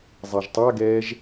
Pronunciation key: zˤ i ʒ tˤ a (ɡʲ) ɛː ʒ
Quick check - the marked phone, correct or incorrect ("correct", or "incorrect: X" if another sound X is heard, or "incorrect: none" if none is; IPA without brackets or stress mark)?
incorrect: ɡ